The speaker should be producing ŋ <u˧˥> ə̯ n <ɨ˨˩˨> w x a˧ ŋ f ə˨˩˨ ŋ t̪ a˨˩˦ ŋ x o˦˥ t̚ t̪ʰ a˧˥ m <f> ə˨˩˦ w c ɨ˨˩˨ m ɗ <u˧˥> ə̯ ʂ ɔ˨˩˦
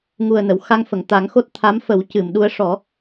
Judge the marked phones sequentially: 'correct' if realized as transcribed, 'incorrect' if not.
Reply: incorrect: u˨˩, incorrect: ə˨˩˨, correct, correct

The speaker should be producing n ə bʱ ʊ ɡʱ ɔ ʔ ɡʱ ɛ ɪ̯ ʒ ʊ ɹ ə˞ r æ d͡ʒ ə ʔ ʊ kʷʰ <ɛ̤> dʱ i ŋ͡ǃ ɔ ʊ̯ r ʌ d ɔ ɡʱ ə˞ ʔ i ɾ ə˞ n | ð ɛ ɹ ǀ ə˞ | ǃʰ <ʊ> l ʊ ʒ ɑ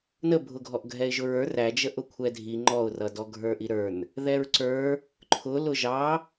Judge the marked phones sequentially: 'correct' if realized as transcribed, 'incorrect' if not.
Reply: incorrect: ɛ, correct

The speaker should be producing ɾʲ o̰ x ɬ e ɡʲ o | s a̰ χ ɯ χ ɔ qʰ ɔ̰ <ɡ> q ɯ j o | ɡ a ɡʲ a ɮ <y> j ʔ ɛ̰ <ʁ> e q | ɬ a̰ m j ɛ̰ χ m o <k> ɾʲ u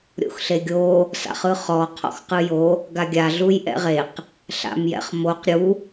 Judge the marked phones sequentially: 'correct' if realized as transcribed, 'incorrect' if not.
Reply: incorrect: x, incorrect: u, correct, incorrect: q

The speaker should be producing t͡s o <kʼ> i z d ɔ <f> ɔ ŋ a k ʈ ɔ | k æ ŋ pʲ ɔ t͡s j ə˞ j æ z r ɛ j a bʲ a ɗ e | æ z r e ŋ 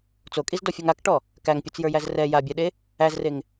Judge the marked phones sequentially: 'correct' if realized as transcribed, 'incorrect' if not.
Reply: correct, incorrect: fʲ

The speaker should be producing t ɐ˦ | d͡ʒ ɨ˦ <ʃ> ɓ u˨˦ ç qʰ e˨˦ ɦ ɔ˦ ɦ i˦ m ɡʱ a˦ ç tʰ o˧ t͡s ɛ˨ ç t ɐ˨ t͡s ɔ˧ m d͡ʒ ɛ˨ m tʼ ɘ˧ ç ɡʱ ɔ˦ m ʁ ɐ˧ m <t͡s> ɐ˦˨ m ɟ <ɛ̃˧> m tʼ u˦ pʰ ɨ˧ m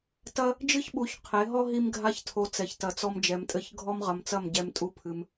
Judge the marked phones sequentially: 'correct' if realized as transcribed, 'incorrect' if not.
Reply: incorrect: ç, correct, incorrect: ɛ˧

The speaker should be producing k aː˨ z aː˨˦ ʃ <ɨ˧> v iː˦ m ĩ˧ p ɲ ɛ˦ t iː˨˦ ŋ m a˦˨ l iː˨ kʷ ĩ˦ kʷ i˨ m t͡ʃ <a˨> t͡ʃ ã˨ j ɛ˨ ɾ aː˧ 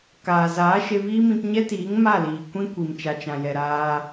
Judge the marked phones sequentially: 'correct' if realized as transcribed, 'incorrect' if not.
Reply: incorrect: e˧, correct

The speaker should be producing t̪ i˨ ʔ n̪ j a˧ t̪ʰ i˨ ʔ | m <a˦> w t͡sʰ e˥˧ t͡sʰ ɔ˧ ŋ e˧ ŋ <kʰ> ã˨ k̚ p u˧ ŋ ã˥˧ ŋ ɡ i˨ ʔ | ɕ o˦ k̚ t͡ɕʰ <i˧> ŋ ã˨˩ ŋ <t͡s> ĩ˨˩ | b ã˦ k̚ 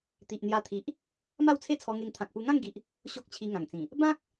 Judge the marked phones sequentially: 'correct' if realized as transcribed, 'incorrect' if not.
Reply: incorrect: a˥˧, incorrect: t̪ʰ, correct, correct

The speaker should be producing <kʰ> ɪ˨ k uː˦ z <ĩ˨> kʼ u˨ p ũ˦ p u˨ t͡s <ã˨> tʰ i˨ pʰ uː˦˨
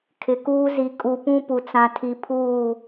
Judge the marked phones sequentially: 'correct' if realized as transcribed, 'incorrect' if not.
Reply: correct, incorrect: i˨, correct

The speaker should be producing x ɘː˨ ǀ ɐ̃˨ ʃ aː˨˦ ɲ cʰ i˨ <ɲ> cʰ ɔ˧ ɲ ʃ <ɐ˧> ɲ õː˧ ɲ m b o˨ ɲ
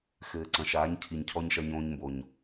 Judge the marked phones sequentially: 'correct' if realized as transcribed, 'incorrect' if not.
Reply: correct, correct

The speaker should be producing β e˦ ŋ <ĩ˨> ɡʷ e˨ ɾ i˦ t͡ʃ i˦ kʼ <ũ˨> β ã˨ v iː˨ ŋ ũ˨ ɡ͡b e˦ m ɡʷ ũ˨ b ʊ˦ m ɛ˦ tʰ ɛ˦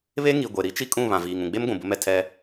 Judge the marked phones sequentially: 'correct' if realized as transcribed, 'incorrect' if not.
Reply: incorrect: i˨, incorrect: ũ˦˨

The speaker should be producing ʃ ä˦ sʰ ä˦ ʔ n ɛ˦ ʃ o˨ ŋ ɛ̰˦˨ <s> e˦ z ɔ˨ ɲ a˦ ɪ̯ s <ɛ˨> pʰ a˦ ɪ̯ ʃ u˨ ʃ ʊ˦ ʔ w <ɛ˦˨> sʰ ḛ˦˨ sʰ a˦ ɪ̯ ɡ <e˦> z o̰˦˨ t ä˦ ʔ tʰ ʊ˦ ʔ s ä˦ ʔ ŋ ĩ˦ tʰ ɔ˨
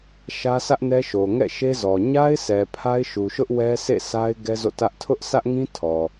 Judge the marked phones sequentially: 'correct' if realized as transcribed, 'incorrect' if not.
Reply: incorrect: ʃ, correct, incorrect: ɛ˦, incorrect: ɛ˦

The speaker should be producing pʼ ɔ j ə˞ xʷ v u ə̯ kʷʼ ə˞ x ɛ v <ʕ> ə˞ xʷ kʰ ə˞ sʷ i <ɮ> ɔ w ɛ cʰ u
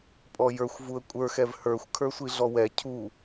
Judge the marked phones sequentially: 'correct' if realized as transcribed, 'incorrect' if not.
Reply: incorrect: h, correct

